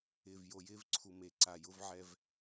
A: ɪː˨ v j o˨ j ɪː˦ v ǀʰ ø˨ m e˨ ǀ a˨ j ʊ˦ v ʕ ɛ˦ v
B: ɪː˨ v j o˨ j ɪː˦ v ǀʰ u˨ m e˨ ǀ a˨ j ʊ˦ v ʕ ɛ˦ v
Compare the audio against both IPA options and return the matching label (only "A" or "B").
B